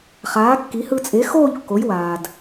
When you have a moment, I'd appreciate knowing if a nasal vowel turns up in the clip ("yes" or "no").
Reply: no